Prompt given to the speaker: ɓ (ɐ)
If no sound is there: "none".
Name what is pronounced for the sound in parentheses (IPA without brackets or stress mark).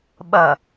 ɐ